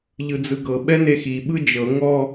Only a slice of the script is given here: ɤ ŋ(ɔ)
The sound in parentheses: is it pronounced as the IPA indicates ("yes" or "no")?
yes